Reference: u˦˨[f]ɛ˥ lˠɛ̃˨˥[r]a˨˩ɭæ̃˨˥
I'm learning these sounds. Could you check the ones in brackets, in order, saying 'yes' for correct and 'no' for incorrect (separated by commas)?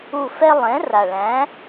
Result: yes, yes